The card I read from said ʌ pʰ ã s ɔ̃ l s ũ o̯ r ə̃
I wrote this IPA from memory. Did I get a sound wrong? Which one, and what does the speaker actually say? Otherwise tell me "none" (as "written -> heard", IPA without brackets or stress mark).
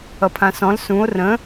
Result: none